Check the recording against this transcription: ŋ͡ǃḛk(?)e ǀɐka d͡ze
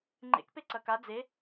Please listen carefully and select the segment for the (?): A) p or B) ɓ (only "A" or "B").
A